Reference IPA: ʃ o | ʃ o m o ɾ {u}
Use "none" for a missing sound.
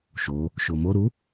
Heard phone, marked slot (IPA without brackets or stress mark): u